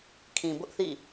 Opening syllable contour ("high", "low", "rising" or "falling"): low